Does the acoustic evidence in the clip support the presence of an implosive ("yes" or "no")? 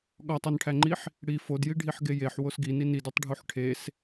yes